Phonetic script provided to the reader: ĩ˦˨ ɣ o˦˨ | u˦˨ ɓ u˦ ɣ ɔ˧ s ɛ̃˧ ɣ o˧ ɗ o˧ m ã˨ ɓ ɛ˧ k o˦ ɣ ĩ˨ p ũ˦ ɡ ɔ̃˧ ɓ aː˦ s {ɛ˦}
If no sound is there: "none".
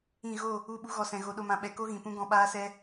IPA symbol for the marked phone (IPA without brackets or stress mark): ɛ˦